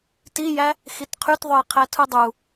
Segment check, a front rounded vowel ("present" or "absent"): present